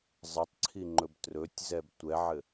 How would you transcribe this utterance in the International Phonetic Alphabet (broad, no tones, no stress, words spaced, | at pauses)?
zˤɘtˤǀʰiŋ͡ǃɵb trɵtʲzɛb tʷɛʕɘ